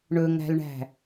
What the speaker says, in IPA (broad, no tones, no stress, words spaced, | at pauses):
ɳɵŋæ̤lɳæ̤